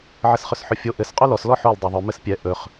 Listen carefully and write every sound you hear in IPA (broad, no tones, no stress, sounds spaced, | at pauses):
ʕ ɘ s χ ɵ s ħ ɵ fʲ o ʔ ɘ s qʼ o l ɔ s l ɔ ħ o l dˤ o ðˤ ɵ m ɘ s pʲ ɛ ʔ ɵ χ